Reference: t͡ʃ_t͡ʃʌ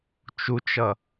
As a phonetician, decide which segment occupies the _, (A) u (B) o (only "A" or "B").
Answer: A